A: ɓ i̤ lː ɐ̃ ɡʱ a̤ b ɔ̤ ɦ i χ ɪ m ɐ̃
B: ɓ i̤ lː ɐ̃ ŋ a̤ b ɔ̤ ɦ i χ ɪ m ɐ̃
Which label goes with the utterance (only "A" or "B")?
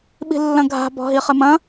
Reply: A